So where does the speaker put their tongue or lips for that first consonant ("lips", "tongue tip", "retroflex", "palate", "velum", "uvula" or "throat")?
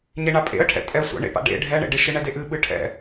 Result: palate